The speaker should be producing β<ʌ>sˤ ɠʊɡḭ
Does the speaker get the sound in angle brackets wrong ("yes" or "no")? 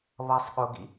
no